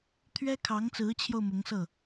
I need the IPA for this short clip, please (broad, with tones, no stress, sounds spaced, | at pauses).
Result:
t̪ʰ ɥ ɛ˥ kʰ ɑ˧˥ ŋ t͡s ɹ̩˧˥ t͡ɕʰ j o˧ ʊ̯ m ʊ˧˥ ŋ s ɤ˥˩